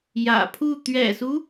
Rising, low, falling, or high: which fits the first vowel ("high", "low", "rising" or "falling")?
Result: low